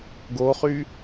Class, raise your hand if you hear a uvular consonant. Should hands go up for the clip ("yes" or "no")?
yes